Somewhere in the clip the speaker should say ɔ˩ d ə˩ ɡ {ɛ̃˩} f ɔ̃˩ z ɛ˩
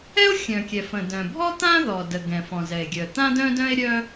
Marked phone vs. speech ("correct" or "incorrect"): correct